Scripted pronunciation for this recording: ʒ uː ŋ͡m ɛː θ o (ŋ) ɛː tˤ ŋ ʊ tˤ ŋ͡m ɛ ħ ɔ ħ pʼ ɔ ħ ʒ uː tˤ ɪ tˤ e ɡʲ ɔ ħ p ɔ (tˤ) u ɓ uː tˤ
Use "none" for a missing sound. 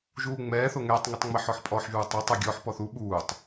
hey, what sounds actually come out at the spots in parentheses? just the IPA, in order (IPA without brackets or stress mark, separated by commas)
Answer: ŋ, θ